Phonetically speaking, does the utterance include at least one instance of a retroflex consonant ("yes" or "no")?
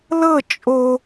no